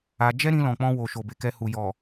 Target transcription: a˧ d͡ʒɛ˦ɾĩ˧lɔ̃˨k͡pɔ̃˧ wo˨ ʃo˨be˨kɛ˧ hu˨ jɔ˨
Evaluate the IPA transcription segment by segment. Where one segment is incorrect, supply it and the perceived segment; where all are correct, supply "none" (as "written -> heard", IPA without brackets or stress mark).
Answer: none